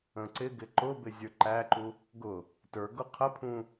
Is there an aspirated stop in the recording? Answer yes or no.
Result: yes